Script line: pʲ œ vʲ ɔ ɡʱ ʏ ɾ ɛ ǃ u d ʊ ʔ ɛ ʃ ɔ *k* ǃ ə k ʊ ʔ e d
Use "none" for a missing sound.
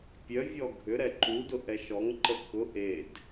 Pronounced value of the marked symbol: ŋ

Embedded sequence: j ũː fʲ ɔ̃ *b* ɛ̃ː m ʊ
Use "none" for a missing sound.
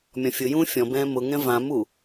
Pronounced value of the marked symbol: b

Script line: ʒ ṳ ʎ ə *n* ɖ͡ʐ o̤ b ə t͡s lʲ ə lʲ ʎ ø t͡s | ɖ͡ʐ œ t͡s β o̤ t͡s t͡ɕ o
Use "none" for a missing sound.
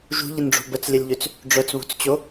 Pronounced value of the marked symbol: n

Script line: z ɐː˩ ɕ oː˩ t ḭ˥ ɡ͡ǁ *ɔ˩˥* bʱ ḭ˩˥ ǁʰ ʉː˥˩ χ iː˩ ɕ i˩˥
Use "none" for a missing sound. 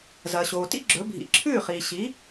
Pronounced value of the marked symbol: ɵ˩˥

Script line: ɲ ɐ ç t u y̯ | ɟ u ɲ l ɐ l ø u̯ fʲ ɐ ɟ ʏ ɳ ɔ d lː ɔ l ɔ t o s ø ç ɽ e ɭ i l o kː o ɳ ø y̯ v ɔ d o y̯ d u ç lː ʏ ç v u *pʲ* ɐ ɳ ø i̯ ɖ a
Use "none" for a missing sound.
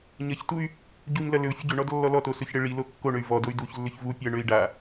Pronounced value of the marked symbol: pʲ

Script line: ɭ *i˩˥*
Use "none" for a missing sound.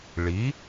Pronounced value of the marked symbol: i˩˥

